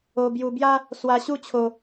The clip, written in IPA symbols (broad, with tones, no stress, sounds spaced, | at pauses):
o˧ b j u˧ b j a˦ | s w a˧ ɕ u˦ t͡ɕʰ o˧